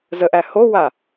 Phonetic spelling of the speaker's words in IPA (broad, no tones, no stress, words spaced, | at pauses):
zəʔæ howa